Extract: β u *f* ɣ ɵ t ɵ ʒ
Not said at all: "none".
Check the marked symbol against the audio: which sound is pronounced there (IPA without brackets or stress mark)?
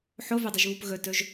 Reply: p